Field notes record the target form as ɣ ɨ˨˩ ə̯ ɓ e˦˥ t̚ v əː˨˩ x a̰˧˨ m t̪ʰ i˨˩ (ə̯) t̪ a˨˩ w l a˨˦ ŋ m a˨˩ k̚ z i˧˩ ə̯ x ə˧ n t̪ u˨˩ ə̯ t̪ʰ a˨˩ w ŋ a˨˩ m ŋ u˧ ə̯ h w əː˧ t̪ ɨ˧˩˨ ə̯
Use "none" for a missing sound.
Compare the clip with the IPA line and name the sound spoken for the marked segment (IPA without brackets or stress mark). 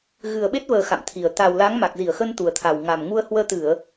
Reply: ə̯